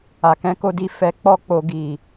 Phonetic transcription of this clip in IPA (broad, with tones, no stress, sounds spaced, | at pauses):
a˨ k ɛ̃˨˦ k o˧ d i˧ f ɛ˨ k͡p ɔ˧ k͡p o˨ ɡ i˨